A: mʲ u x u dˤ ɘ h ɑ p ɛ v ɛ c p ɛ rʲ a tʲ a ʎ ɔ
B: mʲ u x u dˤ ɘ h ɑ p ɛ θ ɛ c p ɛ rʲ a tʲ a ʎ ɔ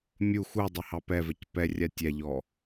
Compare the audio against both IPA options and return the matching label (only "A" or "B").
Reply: A